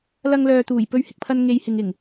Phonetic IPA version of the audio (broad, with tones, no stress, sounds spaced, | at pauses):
l ɐ˧ ŋ l œː˨ t̪ uː˨˩ j p ɵ˧ ɥ h ɪ˨ k̚ pʰ ɐ˧ n ŋ e˨ j h ɪ˨ ŋ ɪ˨˩ ŋ